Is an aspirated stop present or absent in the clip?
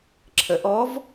present